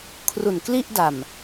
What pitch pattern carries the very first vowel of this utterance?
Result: low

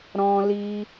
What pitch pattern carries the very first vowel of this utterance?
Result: high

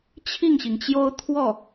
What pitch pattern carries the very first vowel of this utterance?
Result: falling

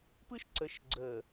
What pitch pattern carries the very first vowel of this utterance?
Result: high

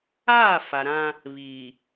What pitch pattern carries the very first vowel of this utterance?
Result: falling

